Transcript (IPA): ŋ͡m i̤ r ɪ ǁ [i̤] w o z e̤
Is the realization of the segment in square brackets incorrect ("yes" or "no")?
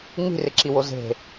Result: yes